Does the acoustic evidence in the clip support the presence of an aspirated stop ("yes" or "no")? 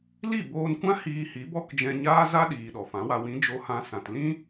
no